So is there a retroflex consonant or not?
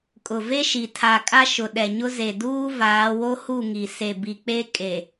no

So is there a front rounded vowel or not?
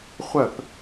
yes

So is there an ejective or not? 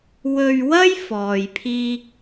no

